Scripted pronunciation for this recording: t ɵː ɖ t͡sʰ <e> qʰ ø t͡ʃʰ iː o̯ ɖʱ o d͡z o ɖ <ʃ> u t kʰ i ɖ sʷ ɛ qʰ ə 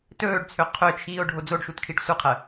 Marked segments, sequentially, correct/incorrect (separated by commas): incorrect, correct